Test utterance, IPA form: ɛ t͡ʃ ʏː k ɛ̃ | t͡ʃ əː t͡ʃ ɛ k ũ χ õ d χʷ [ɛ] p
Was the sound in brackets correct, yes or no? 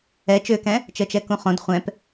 no